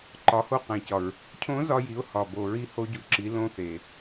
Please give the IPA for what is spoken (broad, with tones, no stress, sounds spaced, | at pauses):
ǃ ɒ˩˧ h o˧ q æ̃˩ c ɒ˩ ɹ | cʰ õ˧˥ z ɒ˧ j i˩˧ ʊ̯ h ɒ˩ b o˩ ɹ i˧ h o˧ ɟ u˩˧ ǁ i˩˧ l õ˧ θ e˩